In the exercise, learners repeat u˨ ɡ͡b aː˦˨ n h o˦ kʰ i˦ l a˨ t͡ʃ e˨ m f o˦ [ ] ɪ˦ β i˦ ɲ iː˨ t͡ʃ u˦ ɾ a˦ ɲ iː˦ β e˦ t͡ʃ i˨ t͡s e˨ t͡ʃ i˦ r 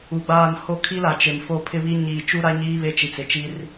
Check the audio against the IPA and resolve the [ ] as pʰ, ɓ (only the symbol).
pʰ